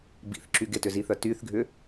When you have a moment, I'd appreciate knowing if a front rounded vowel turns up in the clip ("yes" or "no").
yes